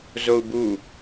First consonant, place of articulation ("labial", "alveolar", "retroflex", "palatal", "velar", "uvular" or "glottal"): alveolar